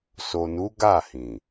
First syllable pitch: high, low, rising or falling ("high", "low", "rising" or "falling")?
low